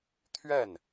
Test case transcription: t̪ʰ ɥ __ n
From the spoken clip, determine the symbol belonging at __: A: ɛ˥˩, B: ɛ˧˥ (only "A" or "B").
A